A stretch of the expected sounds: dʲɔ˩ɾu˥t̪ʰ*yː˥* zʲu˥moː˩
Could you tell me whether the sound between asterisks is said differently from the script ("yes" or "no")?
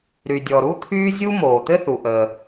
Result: no